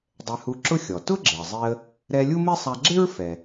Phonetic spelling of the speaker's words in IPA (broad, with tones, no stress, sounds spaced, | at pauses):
dˤ ɛ˧ h u˧ ǁ ʊ˥ xʲ ɔ˩ t ʊ˥ ɡ͡ǁ ɪ˩ ə̯ zˤ i˧ ə̯ | ɾ ɛ˧ lʲ u˥ m e˥ sˤ a˧ ɡ͡ǁ ɪ˥ ɹ f ɛ˩